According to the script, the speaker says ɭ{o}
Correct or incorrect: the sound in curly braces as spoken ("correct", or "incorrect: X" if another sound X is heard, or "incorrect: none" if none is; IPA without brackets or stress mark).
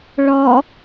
incorrect: ɔ